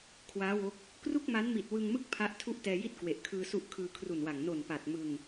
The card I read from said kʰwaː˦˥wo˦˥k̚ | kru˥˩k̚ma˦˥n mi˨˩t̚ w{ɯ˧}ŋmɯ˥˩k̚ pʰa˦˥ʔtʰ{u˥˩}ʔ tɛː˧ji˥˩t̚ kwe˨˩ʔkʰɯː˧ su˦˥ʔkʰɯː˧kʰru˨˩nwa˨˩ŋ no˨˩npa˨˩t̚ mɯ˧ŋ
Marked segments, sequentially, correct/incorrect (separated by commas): correct, correct